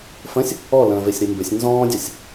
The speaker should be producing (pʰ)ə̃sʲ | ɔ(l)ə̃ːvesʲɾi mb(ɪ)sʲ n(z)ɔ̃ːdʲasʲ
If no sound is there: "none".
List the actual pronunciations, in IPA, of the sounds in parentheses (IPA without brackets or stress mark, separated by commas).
f, l, ɪ, z